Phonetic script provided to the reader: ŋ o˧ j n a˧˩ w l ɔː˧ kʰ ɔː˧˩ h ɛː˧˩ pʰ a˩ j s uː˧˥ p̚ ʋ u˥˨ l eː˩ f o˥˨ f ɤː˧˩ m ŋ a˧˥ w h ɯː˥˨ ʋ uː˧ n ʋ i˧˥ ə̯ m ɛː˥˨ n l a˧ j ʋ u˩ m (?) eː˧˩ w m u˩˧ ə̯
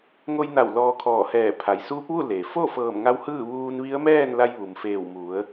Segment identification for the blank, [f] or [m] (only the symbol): f